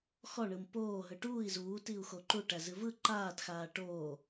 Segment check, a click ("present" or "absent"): present